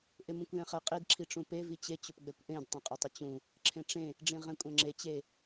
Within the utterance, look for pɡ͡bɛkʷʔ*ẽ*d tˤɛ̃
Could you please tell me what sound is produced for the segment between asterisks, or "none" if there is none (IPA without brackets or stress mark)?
ẽ